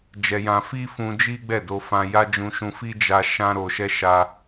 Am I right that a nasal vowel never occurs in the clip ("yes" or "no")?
no